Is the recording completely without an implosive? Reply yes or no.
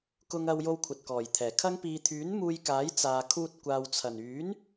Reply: yes